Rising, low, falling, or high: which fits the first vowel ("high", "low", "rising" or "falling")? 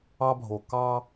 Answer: high